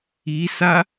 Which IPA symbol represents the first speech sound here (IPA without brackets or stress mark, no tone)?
i